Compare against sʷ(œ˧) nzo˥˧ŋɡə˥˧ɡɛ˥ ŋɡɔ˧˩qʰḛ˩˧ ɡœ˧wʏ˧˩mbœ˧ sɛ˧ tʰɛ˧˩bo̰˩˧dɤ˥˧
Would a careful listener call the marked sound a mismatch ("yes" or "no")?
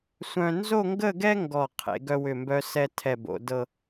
yes